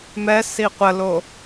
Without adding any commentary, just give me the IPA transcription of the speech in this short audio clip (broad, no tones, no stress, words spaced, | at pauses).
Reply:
mɛ siqʷəlo